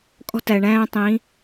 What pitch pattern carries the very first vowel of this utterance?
high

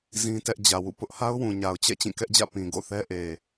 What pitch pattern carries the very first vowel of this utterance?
high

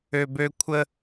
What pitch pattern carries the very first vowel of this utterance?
low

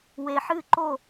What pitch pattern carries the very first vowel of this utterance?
low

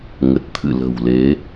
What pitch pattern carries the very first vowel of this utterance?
low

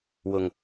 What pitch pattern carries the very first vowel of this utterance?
low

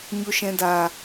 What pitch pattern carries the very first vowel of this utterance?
low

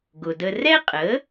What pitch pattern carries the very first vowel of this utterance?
low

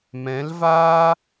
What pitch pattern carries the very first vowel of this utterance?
rising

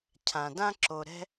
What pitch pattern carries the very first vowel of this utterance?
low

